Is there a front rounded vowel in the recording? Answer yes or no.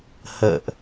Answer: no